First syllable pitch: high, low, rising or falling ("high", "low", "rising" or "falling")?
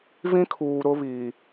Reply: high